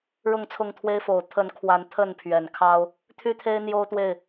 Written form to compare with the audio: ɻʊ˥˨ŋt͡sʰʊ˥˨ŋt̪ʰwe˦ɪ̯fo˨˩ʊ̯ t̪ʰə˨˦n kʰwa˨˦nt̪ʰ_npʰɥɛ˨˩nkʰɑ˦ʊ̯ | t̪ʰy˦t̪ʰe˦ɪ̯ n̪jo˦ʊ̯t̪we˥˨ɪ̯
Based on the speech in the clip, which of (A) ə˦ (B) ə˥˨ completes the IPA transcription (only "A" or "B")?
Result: B